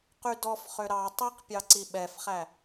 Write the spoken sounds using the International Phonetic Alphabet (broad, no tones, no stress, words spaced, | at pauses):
qydɔf χøɾɑ tˤiqpʲɑǀi ɓɛfχæ